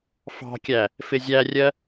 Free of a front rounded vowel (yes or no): yes